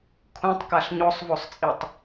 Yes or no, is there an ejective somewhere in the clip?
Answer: yes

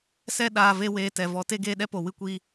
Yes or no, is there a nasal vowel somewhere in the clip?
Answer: no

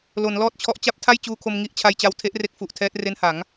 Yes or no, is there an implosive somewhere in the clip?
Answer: no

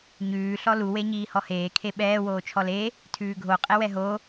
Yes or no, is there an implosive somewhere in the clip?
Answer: yes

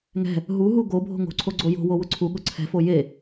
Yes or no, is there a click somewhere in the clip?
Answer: yes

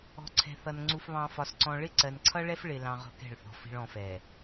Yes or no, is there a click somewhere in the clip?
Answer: yes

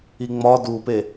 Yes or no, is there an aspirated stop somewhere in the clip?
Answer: no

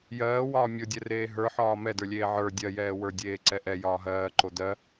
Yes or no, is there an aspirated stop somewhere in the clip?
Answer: no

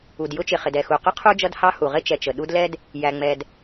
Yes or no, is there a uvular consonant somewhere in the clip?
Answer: yes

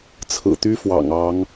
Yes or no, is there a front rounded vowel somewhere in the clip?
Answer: yes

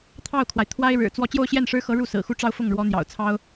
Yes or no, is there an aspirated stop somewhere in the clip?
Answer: yes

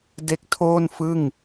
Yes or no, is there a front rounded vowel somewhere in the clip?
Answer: no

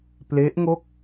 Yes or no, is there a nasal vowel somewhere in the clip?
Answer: no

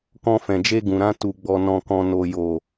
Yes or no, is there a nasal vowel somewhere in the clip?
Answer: yes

